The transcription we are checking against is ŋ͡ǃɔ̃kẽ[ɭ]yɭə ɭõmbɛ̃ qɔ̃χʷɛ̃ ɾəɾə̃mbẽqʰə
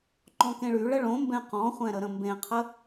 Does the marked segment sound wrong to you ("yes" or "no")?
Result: no